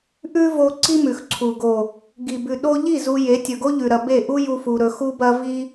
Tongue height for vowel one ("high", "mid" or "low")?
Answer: high